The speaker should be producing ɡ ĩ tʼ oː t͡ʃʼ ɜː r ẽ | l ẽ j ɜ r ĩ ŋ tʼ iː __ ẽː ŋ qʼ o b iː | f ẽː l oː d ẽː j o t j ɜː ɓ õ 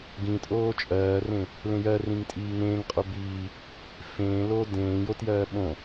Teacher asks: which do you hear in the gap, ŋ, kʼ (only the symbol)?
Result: ŋ